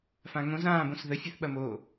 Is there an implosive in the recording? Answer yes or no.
yes